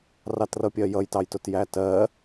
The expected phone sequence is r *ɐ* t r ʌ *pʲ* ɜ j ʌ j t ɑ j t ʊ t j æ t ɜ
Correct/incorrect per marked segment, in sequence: incorrect, correct

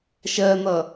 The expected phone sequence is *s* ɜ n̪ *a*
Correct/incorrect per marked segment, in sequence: incorrect, incorrect

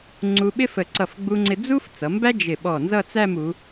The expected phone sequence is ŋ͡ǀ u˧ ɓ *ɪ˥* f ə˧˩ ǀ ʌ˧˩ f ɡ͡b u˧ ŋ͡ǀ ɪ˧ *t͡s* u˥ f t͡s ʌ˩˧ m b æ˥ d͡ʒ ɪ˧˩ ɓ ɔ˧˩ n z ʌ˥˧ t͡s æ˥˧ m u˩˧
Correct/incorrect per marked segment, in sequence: correct, incorrect

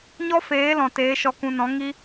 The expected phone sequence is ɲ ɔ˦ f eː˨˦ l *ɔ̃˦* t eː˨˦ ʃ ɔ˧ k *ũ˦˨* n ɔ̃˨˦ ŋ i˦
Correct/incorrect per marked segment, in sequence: incorrect, incorrect

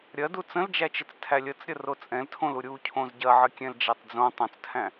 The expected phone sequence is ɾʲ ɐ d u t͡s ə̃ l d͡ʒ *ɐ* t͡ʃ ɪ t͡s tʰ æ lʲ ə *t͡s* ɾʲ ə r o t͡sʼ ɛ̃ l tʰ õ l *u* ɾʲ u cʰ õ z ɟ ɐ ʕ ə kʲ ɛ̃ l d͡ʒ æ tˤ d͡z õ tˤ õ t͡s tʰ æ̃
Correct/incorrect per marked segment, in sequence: incorrect, correct, correct

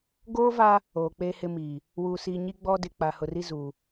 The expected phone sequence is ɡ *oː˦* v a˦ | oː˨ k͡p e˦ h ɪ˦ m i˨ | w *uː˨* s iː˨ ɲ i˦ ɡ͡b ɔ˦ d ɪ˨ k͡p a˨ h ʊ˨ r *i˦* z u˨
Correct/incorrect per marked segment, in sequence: correct, correct, correct

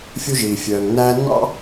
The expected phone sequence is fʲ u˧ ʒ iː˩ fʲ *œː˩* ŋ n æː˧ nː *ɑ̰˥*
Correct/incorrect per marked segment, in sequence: correct, correct

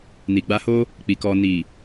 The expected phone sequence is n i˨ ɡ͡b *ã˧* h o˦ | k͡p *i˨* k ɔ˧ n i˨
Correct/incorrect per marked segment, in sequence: incorrect, correct

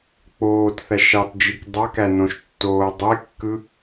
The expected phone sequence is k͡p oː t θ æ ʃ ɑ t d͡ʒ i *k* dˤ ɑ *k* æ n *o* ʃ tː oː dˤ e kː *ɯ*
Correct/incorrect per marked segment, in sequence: correct, correct, incorrect, correct

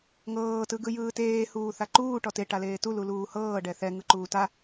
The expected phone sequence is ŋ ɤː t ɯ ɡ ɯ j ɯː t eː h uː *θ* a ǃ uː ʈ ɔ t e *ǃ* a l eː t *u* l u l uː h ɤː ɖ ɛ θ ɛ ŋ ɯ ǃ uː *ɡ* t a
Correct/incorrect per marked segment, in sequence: correct, incorrect, correct, incorrect

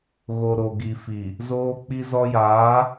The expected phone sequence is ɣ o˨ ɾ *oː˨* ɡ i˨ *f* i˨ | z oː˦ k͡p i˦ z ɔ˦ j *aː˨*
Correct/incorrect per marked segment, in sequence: incorrect, correct, incorrect

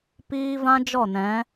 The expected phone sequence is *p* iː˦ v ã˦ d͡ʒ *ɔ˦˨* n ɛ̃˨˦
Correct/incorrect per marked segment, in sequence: correct, correct

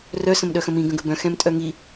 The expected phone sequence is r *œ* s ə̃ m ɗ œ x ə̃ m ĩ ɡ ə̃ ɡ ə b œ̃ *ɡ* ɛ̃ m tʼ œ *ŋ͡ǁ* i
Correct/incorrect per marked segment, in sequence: correct, incorrect, incorrect

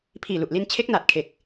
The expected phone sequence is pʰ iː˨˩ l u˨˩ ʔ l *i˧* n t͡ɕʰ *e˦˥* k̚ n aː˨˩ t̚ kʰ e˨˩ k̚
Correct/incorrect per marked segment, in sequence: correct, correct

